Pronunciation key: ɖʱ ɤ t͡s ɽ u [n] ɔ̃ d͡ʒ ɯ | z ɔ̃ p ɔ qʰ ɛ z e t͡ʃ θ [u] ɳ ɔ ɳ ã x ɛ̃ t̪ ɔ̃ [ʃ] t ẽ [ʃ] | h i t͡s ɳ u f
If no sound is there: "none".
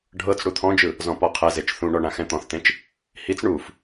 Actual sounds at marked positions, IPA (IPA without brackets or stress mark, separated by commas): t̪ʰ, ũ, θ, t͡ʃ